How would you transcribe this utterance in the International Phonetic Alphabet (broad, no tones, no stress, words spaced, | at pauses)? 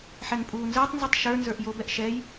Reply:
ħɛŋpʼuːnzəːtˤnzutˤ ʃə˞nzə˞ʔ jobɛʔ ʃɛj